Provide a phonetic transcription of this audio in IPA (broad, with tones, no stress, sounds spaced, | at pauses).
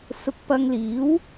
s ʊ˧ k̚ p ɐ˧ ŋ l iː˨˥ w